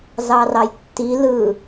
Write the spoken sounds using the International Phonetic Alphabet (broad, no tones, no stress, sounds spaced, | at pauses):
z ɑ r ɑ j tː i l ɯ